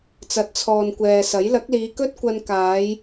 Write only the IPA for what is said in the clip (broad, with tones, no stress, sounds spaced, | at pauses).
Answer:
t͡s ɐ˨˥ t̚ t͡sʰ ɔː˨ n kʷ ɛː˨ s ɐ˨˥ j l ɐ˨˥ k̚ l iː˨˧ k ɵ˥ t̚ kʷ ɐ˧ n k aː˨˧ j